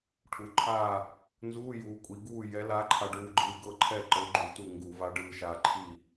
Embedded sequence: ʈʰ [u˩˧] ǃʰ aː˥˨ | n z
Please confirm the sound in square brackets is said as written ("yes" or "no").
yes